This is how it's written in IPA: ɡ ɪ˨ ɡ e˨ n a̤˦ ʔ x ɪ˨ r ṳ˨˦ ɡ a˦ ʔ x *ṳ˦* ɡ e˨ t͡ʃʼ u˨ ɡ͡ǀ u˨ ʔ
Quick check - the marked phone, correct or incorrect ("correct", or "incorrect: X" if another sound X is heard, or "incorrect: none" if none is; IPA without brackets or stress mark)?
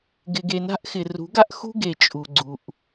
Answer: correct